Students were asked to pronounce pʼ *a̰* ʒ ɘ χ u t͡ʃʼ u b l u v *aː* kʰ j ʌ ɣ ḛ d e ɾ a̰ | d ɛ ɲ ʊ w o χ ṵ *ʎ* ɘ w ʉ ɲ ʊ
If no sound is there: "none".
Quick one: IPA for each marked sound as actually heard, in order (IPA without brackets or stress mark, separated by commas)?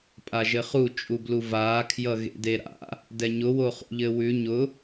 a, aː, ʎ